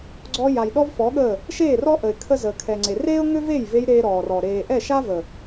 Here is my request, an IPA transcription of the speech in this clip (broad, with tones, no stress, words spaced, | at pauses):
ɡ͡ǀɔ˧ ja˨jɗɔ˦vfɔ˨˦ɠəː˦˨ | ʃeː˦˨ rɔ˦ʔə˨ɪ̯ kʰə˦zəː˨kʰɛ˨ŋ͡ǀe˨ reː˦ʊ̯ŋø˦veː˦˨jve˧j ɾeː˦ɾɔː˨rɔ˨ ɾeː˨ʔɛ˦˨ʃa˦və˨